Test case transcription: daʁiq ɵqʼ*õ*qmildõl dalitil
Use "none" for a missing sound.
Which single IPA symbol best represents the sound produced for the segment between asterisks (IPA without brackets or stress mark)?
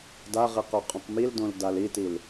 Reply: õ